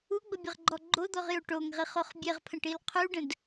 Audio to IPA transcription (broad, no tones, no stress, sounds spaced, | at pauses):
u ɡ͡b ə bʲ ə ʁ ɡ͡ǃ ɔ ɡ͡ǃ o d̪ ɔ ʁ j o ʈ o ŋ ʁ i χ o χ bʲ e ʁ pʰ ə̃ ʈ i l qʰ u ɖ ə̃ d